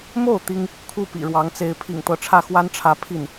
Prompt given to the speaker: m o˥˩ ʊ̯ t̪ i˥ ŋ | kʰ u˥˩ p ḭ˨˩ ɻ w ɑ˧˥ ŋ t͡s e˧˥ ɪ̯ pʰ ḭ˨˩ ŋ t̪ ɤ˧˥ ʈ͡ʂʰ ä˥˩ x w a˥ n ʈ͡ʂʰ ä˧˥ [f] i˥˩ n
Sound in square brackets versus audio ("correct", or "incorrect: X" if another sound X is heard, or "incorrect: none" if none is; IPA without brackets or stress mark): incorrect: pʰ